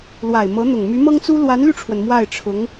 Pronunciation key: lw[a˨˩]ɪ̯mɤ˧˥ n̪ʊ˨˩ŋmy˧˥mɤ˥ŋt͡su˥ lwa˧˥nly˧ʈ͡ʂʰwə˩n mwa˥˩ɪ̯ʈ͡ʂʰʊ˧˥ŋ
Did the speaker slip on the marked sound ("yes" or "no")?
no